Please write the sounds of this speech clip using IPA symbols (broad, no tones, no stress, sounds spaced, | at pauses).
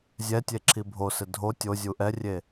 zʲ ɛ tʲ e ǁʰ i bʱ o s ɪ dʱ o tʲ o zʲ u ʔ ɛ rʲ e